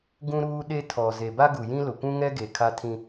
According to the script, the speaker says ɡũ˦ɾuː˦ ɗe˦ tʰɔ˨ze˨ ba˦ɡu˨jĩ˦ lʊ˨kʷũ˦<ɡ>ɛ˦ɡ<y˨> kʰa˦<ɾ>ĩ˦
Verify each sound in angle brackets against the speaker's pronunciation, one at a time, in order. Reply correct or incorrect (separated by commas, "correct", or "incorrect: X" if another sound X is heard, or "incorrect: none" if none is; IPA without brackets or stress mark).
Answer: incorrect: ŋ, incorrect: e˨, incorrect: tʰ